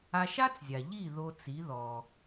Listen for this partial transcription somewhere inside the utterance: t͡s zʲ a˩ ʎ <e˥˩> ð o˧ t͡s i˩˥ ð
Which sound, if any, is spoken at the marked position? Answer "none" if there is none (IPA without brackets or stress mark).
i˥˩